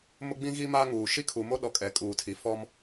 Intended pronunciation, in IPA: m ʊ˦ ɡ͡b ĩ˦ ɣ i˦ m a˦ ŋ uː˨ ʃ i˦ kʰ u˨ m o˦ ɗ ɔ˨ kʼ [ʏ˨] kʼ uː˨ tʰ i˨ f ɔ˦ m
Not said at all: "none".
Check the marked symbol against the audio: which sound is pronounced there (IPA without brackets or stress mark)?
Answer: ɛ˨